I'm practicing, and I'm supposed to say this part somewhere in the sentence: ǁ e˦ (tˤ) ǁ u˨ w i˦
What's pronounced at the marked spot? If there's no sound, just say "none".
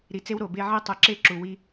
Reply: none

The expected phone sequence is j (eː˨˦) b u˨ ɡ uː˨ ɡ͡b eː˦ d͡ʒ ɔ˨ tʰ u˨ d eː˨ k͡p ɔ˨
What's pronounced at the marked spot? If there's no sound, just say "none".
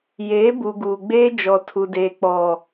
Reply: eː˨˦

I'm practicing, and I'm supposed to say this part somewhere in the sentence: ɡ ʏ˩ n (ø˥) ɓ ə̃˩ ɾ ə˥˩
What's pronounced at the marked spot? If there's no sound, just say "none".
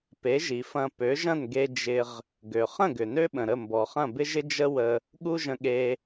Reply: ø˥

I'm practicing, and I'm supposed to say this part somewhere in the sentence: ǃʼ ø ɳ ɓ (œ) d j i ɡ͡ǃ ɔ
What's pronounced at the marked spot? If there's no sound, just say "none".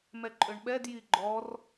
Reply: ɛ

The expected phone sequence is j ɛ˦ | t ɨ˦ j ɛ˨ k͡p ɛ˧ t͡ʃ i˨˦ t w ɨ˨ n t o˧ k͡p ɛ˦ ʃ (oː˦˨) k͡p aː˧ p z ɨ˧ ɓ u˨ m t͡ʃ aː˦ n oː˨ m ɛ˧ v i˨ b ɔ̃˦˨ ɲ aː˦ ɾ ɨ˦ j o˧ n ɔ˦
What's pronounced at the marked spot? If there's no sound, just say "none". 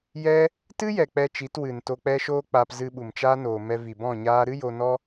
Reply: oː˦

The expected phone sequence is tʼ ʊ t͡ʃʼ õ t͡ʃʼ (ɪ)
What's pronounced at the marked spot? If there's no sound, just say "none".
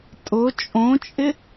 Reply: ɪ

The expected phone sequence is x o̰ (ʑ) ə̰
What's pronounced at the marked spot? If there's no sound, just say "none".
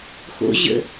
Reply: ʑ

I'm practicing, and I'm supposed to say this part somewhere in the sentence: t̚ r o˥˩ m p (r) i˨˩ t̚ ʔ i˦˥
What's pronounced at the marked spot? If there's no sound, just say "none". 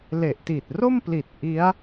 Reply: l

